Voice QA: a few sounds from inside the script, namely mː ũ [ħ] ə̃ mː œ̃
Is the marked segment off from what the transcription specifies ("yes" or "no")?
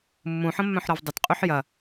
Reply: no